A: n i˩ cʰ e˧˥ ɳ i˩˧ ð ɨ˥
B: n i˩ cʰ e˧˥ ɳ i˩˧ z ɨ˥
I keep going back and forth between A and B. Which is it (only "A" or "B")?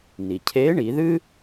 A